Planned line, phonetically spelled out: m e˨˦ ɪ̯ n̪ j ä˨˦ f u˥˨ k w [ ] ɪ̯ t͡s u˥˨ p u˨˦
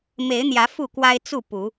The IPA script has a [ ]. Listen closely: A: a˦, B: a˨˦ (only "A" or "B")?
A